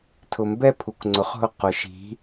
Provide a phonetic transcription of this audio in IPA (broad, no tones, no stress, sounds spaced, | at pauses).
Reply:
tʰ ʊ m b ɛ pʰ u k ŋ͡ǀ ʊ χ ɦ ʊ q ʊ ʃ i̤